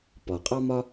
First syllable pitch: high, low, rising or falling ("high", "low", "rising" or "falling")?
low